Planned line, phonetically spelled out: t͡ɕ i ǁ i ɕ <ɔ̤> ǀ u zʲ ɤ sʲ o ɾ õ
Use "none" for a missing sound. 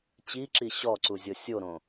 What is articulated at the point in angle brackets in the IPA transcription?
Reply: ɔ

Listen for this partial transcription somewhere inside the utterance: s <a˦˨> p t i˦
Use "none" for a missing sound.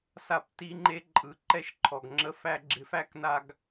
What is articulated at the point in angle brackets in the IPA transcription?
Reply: a˦˨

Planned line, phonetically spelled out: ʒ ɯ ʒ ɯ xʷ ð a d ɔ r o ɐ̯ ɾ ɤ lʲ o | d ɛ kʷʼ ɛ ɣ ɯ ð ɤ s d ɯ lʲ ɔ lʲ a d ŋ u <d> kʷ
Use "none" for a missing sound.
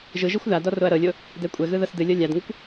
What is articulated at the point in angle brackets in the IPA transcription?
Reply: none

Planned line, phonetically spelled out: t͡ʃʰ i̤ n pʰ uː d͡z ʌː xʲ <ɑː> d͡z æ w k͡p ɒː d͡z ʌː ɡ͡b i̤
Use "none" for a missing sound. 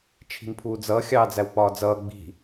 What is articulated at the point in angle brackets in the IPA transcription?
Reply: ɑː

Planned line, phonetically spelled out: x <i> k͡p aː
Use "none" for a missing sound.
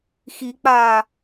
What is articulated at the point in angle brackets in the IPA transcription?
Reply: i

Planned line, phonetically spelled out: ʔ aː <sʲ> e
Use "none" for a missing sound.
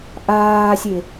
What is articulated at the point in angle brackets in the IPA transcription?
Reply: sʲ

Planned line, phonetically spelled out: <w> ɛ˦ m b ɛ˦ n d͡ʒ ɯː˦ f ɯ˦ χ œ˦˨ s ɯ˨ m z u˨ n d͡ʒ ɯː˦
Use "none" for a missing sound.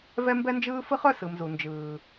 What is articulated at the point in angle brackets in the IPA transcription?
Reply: v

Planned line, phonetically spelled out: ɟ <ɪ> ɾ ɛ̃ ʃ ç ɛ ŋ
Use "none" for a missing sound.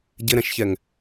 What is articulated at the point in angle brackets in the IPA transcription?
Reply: ɪ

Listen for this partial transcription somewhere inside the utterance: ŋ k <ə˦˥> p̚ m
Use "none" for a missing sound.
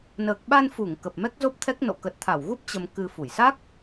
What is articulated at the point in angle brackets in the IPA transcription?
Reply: ə˨˩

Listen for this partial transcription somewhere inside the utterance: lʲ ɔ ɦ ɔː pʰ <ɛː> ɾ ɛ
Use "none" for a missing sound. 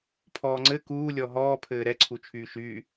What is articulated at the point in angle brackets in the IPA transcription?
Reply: ɘː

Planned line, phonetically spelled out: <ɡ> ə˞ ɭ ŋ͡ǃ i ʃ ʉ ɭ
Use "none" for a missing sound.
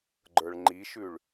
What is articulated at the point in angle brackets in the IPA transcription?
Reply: ɡ͡ǃ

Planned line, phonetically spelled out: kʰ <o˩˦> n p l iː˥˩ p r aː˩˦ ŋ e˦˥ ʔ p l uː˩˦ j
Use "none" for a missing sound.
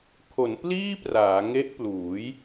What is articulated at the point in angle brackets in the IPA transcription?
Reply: o˩˦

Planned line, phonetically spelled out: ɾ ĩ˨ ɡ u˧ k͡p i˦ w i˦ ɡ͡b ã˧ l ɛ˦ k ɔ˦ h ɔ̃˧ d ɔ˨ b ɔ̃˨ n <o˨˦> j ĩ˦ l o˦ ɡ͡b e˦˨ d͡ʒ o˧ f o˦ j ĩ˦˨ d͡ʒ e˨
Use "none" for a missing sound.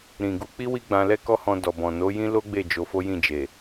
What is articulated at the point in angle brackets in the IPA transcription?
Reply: o˨˦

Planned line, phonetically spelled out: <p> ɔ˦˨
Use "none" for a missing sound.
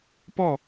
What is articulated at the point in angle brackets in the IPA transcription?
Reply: p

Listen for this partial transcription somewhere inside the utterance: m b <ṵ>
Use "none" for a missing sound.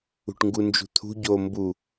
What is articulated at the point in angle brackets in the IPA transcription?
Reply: u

